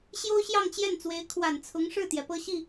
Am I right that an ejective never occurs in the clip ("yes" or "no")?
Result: yes